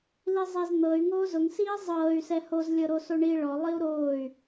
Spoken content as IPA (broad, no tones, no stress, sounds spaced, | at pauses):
l i zˤ e z n̪ ɤ y̯ ŋ oː z ʊ ŋ s iː zˤ ɤː y̯ s ɛ h o z lʲ ɤ ɾ o s o ɳ i ɭ ɔ lˠ i u̯ ɾ oː y̯